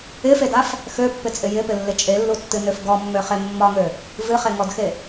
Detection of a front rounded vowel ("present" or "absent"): present